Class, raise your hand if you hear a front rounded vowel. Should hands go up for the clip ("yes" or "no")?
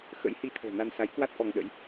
no